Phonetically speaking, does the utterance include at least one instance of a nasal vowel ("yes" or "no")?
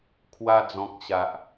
yes